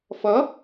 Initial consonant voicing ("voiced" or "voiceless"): voiceless